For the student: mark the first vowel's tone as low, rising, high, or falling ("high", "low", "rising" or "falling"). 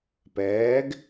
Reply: rising